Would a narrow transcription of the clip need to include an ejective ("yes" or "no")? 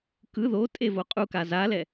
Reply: yes